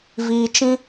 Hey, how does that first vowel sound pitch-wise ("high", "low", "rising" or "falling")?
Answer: low